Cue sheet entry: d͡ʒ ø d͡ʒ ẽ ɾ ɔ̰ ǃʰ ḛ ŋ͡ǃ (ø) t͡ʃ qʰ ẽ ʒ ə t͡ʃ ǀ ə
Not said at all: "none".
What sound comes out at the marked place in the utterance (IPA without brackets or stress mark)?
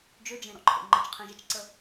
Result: ə